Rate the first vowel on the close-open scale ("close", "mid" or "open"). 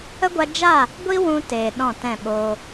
mid